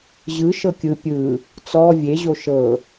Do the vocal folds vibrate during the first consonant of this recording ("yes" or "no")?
yes